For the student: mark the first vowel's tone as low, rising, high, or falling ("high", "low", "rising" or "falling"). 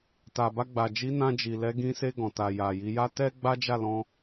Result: low